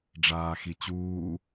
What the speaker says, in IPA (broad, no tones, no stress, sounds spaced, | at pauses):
ɖ͡ʐ aː x i t͡ɕ uː